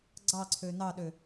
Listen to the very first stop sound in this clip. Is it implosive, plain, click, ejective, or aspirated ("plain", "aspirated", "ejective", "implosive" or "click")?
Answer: click